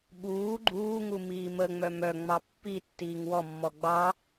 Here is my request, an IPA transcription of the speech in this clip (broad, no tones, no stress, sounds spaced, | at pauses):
ɓ uː ɡ͡ǃ uː ŋ u m iː m ə ŋ͡m œ m œ ŋ͡m ɑ pː i tː iː ŋ w ɔ mː ɔ ɡ͡b ɑ